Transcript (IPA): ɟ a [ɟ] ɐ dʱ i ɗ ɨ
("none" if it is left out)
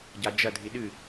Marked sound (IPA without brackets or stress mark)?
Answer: d͡ʒ